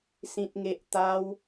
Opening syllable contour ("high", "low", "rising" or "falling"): high